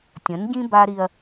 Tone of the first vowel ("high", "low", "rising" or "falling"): rising